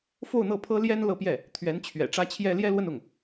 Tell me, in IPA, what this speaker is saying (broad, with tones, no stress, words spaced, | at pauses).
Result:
fo˥˧ʊ̯n̪ɤ˥˩pʰɤ˥ ljɛ˥n lɤ˥˧pjɛ˥˩ | t̪ʰɥɛ˧˥nt͡ɕʰɥɛ̰˨˩ʈ͡ʂä˥t͡ɕʰjɛ˥ ljɛ˥lwə˥˧nʊ˥˩ŋ